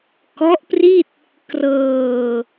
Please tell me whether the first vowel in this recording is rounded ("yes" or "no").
yes